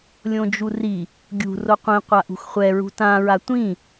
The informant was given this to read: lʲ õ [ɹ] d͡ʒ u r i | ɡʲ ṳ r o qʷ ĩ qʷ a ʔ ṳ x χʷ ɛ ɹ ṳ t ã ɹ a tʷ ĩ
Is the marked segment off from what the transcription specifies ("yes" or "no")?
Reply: yes